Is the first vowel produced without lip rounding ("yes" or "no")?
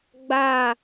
yes